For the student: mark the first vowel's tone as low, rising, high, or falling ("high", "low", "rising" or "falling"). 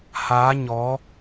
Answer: rising